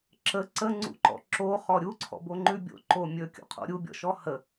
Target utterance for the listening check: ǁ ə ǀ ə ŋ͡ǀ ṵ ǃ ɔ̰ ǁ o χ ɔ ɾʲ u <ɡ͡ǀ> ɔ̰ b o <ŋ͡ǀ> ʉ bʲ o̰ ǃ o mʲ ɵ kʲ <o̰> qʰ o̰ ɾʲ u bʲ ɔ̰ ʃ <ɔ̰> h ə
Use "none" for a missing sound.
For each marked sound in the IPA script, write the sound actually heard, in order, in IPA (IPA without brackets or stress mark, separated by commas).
ǀʰ, ŋ͡ǃ, o̰, ɔ